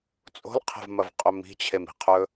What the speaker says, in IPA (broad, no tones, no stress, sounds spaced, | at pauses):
t͡sʼ o̤ l qʰ e̤ v m ɐ v qʼ ɵ m i̤ t͡ɕʰ e m i̤ qʰ ɵ